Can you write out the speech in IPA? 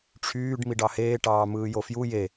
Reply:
ʈ͡ʂʰ yː ɖ m i ɖ ɑ h eː ʈ ɑː m ɯː j o f j u j e

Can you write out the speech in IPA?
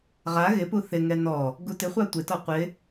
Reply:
ʁ a ɣ ɪ p u θ ɪ ŋ ɛ n ɔ | ɡ u t ɪ χʷ a tʷ ɪ t ɔ qʷ ɪ

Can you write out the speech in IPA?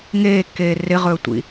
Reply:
ŋ eː kː eː r ɪ ʁ ɵː tʷ ḭ

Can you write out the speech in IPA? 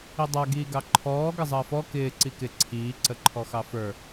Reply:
i dˤ a ɡ iː ɡ ɑ ǃʰ ɔː ɡ ə zˤ əː f ɔ k ɪː ǀ i k ɪ ǀʰ iː ǀ ə ǃʰ ɔ x ɑ f ə˞

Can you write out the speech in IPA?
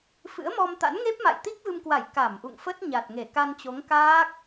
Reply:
f ɨ̰˧˥ ə̯ m ɔ˧ m t̪ a̰˧˥ n ŋ e˦˥ p̚ m a̰˧˨ j t̪ i˦˥ k̚ v ɨ˧ m k w a˧˩ j k a˧˩ m ʔ ṵ˧˨ ŋ f ə˦˥ t̚ ɲ a˨˩ t̚ ŋ e˧˩ k a˧ n t͡ɕ o˨˦ ŋ k aː˦˥ k̚

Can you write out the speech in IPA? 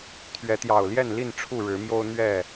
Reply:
t̪ʰ ɥ ɛ˨˦ t̪ j ɑ˨˩ ʊ̯ l j ɛ˥˨ n l i˥˨ n ʈ͡ʂʰ u˥˨ ɻ ɻ̩˨˦ m j o˦ ʊ̯ n̪ ɥ ɛ˥˨

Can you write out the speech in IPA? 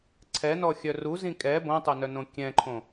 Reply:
ǀʰ ɛ n ɔ xʲ œ r u z ĩ kʼ ɛ b õ tˤ o n œ n õ kʲ ɛ̃ ǃʰ õ

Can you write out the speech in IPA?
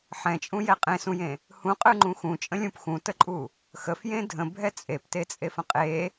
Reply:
ħ ɛ̃ t͡ʃʼ ũ j ɛ qʼ ẽ s ũ j ẽ | h ũ qʼ ɯ ŋ͡ǃ ũ x ũ t͡ʃʼ ə̃ lʲ ũ p x ũ t ə ǃʼ u | x ə f j ẽ dʱ ə̃ bʱ ɛ t͡sʼ e p t e t͡sʼ e f ə̃ qʼ e

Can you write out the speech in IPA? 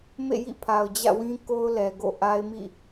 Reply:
m ḛ˦˨ j ḭ˦˨ pʰ a˨ ʊ̯ d͡ʑ ä̰˦˨ w ĩ˦ k o˦ ʊ̯ l ɛ˨ ɡ o̰˦˨ ʔ a˦ ɪ̯ m ḭ˦˨

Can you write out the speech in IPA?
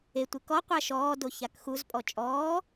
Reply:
e tʷ ɨ k ɔ qʷ a ʃ ɔː d o ç a k x u z pʼ ɔ t͡ʃʼ ɔː

